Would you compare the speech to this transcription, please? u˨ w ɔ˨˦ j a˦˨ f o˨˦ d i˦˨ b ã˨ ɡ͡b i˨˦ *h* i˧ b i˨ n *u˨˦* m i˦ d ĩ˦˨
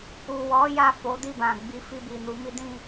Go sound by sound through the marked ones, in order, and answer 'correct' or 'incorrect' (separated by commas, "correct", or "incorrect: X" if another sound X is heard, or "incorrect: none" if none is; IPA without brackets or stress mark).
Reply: incorrect: f, correct